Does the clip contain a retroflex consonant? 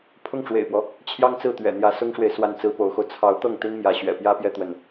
yes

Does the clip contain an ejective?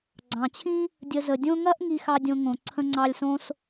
no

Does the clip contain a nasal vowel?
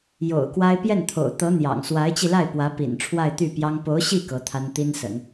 no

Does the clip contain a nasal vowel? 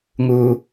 no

